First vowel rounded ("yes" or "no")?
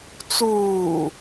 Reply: yes